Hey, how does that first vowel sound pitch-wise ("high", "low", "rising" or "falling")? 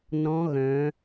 rising